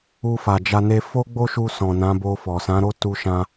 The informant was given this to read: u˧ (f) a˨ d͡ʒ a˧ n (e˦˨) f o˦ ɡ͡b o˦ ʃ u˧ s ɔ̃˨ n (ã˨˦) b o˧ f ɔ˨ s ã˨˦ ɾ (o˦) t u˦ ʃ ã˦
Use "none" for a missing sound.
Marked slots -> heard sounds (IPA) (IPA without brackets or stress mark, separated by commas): f, e˦, ã˨˦, o˦